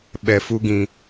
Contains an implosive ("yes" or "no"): yes